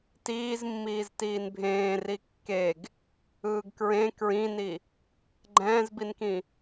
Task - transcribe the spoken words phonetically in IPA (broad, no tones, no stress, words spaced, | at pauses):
tiːzmːiːz tiːnbʱẽː rikːeɡ | ɯːɡkɹẽ kɹĩni | ɡ͡ǃɛ̃ːzbinkĩ